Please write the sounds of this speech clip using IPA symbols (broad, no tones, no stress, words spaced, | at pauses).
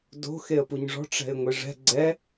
do̤ xeə̯puɲʐɔ̤ ʈ͡ʂɛ̤ɪ̯ŋʷeʐɛ̤ ɡ͡ǀɛ